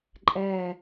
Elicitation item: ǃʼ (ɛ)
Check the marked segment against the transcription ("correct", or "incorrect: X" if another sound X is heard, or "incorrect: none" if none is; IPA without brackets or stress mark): correct